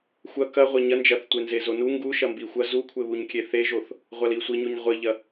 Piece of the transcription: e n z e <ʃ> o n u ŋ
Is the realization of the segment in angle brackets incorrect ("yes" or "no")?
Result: yes